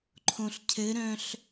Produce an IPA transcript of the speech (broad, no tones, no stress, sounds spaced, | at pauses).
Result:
ǃʰ õ ɬ cʰ ɘ ɾ œ̃ ɬ